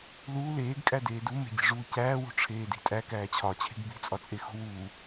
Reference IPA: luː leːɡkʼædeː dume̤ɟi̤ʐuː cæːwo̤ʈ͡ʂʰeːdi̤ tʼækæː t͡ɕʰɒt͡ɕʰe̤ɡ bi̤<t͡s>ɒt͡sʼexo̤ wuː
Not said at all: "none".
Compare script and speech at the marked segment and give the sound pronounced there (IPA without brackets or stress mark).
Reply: t͡sʼ